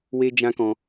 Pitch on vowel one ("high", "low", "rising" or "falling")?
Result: high